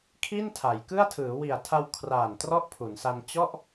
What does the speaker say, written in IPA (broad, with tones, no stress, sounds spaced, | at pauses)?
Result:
kʰ i˥˩ n tʰ a˩˦ j k ɯ˥˩ a̯ tʰ ɯː˩˦ w i˨˩ a̯ tʰ a˧ w kʰ r aː˨˩ n t r ɔ˥˩ ʔ pʰ u˩˦ n s a˧ n t͡ɕ ɔ˥˩ ʔ